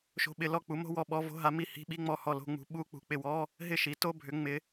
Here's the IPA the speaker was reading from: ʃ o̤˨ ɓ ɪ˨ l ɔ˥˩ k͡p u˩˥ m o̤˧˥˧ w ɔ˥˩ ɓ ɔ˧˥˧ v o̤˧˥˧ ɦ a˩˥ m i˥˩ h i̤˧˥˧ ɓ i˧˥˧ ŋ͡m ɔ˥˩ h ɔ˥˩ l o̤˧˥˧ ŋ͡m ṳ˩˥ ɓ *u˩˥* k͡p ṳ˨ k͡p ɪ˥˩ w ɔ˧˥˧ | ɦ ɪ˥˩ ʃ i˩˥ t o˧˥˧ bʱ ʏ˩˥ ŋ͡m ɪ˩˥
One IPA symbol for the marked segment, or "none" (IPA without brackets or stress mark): u˧˥˧